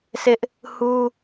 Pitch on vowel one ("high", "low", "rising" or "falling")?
high